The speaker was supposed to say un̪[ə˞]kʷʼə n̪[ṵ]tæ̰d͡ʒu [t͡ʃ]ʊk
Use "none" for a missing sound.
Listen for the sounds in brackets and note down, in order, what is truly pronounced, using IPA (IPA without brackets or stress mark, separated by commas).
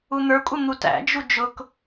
ə˞, u, d͡ʒ